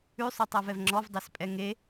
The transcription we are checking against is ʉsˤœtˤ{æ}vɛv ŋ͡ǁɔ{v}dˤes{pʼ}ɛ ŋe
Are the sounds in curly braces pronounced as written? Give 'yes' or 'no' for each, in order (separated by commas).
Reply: no, yes, yes